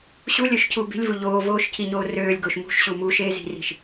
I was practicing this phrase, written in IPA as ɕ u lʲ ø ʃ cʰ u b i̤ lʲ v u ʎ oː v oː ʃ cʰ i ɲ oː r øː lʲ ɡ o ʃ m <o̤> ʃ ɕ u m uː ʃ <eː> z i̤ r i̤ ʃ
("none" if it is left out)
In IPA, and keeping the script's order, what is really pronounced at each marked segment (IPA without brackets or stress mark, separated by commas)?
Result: ṳ, eː